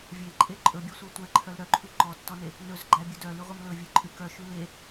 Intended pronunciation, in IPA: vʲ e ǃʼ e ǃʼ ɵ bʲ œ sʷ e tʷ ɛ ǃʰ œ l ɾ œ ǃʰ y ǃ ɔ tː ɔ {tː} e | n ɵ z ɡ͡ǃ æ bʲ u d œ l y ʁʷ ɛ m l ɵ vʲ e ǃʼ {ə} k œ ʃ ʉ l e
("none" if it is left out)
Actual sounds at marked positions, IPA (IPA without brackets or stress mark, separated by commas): n, ʉ